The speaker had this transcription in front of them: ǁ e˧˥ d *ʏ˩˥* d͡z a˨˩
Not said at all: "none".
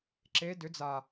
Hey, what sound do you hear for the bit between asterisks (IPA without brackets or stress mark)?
ʏ˩˥